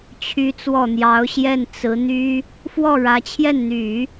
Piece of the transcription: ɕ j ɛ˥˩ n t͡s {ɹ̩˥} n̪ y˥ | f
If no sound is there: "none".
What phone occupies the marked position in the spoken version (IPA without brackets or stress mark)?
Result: ɹ̩˧˥